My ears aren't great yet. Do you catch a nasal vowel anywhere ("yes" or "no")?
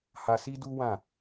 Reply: yes